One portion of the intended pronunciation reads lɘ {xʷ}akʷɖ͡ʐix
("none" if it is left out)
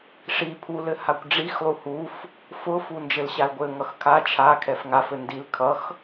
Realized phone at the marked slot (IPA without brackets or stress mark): h